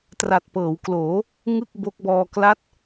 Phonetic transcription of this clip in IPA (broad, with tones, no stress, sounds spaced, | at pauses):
t r a˨˩ t̚ p ɤː˩˦ w k l oː˩˦ | ŋ ɯ˥˩ k̚ b o˦˥ k̚ b ɔː˧ k l a˦˥ t̚